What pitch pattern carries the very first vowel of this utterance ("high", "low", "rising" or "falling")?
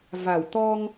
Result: low